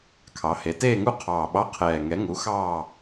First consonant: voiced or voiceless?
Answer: voiceless